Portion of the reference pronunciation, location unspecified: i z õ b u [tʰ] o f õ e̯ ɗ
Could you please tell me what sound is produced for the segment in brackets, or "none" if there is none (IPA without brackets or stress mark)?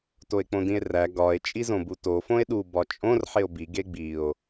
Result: t